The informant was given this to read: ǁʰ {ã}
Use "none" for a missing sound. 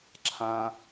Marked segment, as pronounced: ã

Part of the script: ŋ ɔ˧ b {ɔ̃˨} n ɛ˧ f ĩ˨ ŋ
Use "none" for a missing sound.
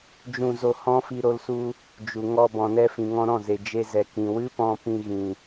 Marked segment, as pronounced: ɔ̃˨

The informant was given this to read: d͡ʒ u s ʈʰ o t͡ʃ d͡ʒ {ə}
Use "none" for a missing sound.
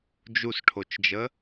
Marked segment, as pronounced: ə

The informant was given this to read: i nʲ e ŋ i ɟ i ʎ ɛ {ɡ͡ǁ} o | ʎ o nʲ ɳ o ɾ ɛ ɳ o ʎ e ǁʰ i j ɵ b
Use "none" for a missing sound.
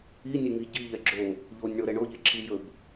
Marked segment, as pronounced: ɡ͡ǁ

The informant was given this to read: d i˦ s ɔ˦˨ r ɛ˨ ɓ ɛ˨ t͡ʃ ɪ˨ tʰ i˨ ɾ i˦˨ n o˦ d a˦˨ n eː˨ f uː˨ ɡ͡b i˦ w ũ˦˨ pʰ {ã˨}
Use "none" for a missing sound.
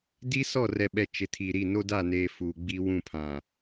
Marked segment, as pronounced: ã˨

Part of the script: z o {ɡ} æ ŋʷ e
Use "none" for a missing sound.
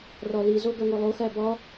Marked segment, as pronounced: ɡ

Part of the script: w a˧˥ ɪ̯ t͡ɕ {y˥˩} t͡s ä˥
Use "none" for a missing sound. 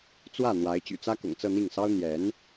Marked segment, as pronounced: y̰˨˩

